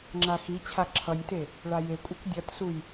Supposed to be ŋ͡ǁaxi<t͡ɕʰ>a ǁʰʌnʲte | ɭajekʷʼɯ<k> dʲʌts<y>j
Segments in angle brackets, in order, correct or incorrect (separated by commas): correct, correct, incorrect